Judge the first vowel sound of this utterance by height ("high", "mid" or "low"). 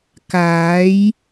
low